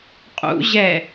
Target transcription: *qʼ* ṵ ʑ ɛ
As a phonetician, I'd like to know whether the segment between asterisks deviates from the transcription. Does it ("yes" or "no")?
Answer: no